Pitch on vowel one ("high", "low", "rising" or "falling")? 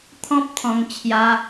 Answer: high